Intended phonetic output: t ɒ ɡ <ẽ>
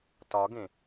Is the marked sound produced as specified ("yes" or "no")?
yes